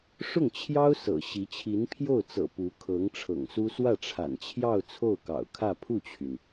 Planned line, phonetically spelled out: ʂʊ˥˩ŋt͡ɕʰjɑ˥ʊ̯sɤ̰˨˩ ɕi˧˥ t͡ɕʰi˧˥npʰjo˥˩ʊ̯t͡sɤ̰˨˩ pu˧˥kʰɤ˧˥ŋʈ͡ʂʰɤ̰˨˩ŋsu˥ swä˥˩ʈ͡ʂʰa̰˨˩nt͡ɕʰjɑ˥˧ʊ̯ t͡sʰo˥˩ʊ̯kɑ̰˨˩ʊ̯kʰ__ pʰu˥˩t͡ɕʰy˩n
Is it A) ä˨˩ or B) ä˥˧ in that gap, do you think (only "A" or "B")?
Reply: B